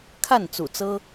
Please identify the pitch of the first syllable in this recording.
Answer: falling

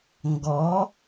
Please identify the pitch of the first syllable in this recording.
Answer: rising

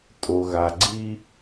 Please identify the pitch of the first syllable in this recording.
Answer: low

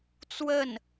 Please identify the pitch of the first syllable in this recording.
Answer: falling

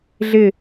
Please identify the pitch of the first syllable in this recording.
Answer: falling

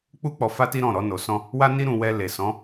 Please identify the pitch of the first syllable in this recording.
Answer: high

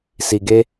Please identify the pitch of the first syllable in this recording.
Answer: low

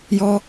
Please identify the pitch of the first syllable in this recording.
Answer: low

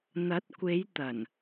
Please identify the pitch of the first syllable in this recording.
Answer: rising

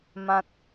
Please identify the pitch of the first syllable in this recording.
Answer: low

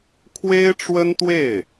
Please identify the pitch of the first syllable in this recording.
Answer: high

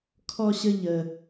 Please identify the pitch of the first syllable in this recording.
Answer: high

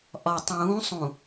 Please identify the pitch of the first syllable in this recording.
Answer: low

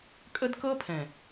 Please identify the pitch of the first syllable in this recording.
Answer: high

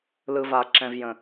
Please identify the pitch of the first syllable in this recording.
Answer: low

